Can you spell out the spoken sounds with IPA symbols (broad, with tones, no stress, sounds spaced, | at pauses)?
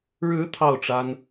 ɻ ɻ̩˧˥ t̪ʰ ɑ˥˩ ʊ̯ ʈ͡ʂ a˥ n